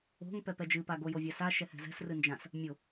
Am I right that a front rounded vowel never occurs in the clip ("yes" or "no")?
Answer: yes